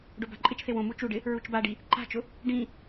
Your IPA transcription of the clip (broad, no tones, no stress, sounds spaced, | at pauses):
ɖ o b a̤ ǃʼ ɪ t͡ʃ θ e w õ m u t͡ʃ u ɖ ɪ | ɹ u t͡ʃ b a ɖ i | ǃ a̤ t͡ʃ ʊ | ɖ ĩ